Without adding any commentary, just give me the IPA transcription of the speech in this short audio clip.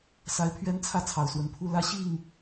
s a˨˦ ɪ̯ pʰ ɥ ɛ˦ n t͡sʰ ä˥˨ t͡sʰ ɑ˨˩ ʊ̯ s w ə˨˦ n pʰ u˦ l ä˦ ɕ i˥˨ ŋ

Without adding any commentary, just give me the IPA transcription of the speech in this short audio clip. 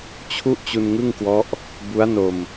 t͡ɕʰ u˥˩ ʔ t͡ɕ u˧ n ŋ ɯ˥˩ ŋ k w ɔ˦˥ ʔ | b u˦˥ a̯ n o˧ m

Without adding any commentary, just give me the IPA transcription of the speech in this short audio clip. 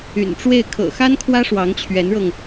y̰˨˩ n ʈ͡ʂ w e˥˩ ɪ̯ kʰ ɤ̰˨˩ x a˥ n kʰ w ä˥ ʂ w ɑ˧˥ ŋ t͡ɕʰ ɥ ɛ˧˥ n ɻ ɤ˧ ŋ

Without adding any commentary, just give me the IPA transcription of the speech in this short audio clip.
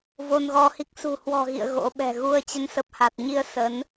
v o˧ n ɣ ɔ˧ h i˦˥ k̚ s ṳ˨˩ h w ɔ̤˨˩ ɣ ḭ˧˨ ə̯ ɣ o̰˧˥ ɓ ɛ̤˨˩ ɣ u˧ ə̯ t͡ɕ ə˨˦ n s ə˨˩ p̚ h a˨˩ t̚ ɲ i˧ ə̯ s ə˨˦ n

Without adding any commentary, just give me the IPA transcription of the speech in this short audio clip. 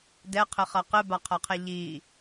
d ɛ qʰ ɘ χ ɐ q ɘ b a qʰ ɐ qʰ ɛ ʎ i

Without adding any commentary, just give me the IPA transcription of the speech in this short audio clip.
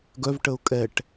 ɡ œ v ʈ ə ʊ̯ kʼ ɛ ʈ

